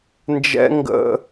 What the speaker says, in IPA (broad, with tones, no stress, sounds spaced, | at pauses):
n d͡ʒ ɛ̰˦ ŋ ɡ ə̰˦